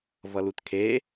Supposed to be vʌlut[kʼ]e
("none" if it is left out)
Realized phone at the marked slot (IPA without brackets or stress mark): kʰ